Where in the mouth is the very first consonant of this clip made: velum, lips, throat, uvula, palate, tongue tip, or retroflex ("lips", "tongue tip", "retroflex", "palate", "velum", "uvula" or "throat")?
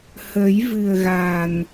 throat